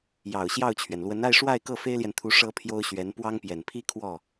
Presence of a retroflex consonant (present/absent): present